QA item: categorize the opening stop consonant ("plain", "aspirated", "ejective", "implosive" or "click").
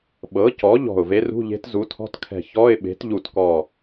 implosive